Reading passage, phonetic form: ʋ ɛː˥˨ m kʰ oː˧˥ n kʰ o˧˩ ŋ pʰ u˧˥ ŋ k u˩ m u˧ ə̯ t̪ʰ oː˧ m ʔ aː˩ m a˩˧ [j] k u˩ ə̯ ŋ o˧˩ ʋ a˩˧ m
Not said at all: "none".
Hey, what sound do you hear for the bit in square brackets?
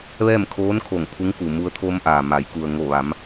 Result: j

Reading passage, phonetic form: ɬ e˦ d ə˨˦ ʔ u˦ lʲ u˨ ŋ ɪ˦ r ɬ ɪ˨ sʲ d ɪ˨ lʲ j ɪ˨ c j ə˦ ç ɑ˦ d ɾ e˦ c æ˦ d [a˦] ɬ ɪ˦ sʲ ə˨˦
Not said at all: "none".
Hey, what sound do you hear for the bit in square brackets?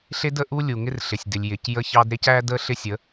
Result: ə˦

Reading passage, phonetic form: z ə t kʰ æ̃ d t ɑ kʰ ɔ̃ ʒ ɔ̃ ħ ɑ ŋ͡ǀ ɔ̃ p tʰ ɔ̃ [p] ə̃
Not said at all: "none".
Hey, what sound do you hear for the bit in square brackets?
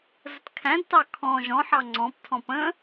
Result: p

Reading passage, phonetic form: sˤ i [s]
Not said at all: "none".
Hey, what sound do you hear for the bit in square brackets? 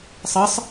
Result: sˤ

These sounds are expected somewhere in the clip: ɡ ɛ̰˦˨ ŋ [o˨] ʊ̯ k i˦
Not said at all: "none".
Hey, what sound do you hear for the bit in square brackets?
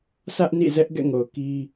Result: o˨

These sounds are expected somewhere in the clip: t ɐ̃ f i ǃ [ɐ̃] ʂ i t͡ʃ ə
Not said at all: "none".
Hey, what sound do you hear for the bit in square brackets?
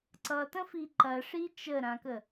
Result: ɐ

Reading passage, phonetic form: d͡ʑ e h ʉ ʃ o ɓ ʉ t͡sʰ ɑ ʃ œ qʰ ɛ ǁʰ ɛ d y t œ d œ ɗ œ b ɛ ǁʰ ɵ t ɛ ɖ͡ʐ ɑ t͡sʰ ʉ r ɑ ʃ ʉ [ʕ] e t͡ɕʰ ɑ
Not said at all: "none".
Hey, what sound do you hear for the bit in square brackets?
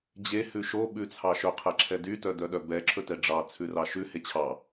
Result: h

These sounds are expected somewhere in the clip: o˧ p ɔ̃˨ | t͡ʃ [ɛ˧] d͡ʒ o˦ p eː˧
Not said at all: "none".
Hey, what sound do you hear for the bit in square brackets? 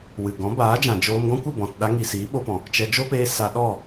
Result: ɛ˧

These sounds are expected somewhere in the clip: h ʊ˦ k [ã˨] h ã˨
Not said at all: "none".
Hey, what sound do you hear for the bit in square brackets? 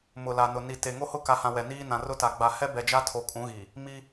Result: a˨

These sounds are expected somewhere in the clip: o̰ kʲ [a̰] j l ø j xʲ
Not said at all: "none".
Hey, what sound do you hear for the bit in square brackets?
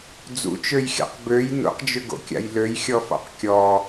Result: a̰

